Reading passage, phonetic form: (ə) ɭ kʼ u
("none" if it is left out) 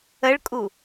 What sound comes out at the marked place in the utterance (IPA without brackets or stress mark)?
ə